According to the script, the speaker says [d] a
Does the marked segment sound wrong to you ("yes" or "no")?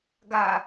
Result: yes